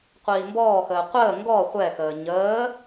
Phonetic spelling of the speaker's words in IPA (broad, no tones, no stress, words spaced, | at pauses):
qʷiːmbɔːxəː qʷəː ŋɡɔ χʷɛxəː ɲəː